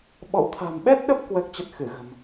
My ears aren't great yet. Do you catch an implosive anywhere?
yes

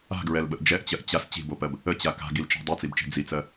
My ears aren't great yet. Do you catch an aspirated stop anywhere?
no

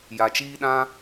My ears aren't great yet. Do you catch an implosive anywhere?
yes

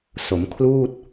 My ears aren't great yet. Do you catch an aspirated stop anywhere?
yes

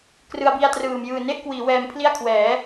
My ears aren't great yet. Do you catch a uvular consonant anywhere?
no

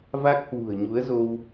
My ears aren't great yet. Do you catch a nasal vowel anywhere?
no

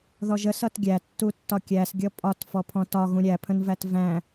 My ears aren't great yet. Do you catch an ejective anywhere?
yes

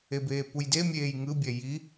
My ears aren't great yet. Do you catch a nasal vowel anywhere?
no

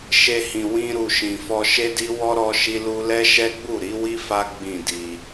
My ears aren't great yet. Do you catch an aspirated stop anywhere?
no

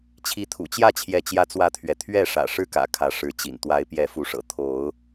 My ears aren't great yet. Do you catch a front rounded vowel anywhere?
no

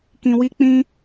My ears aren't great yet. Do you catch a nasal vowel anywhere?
yes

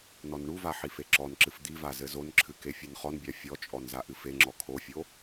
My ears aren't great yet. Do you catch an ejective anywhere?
yes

